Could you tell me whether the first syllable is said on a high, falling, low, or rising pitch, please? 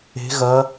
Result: rising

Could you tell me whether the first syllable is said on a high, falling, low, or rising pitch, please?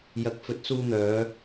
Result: rising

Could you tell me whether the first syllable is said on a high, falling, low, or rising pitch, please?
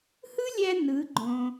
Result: high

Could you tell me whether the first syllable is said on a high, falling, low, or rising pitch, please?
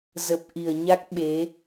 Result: low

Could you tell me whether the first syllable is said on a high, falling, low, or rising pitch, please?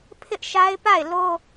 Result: high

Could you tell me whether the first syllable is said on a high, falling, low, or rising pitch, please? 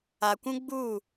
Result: low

